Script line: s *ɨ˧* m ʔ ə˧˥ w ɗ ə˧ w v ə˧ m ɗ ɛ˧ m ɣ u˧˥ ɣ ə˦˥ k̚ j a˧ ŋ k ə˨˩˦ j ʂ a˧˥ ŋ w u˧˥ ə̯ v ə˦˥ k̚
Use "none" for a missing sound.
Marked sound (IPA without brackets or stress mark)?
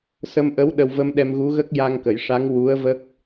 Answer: ə˧